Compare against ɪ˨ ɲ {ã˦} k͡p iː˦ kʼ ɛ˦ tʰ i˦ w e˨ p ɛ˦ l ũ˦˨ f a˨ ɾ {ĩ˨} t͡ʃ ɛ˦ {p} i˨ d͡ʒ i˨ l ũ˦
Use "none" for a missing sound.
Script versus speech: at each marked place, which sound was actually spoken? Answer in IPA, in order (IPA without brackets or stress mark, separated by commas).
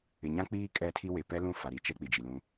ã˦, i˨, k͡p